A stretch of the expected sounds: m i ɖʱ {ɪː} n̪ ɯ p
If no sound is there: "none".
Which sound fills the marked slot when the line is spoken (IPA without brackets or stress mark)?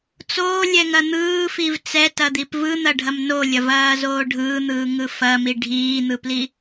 iː